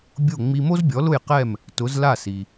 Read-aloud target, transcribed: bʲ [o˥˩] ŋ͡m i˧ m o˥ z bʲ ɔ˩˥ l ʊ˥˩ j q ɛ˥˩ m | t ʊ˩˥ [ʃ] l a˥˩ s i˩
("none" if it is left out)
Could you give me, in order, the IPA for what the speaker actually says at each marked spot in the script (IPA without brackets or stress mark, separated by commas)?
o˥˩, z